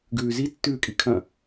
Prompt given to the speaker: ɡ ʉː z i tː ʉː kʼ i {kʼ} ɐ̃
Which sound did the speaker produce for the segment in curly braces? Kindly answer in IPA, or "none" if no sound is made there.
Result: kʰ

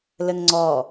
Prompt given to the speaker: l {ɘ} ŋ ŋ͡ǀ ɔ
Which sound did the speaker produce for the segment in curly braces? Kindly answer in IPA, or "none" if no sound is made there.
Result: ɘ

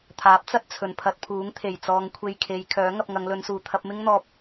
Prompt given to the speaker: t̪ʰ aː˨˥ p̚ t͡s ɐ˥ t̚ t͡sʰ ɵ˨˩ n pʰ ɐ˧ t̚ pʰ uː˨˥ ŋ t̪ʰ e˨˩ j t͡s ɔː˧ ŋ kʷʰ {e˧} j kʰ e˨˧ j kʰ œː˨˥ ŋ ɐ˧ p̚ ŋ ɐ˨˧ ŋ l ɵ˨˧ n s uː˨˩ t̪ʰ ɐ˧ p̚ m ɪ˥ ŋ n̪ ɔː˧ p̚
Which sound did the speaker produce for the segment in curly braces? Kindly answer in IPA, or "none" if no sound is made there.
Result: e˧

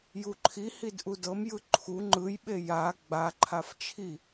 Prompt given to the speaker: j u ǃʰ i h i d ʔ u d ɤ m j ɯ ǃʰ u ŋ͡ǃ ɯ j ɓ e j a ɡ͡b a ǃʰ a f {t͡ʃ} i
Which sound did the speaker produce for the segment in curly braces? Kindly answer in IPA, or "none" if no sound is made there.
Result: t͡ʃʰ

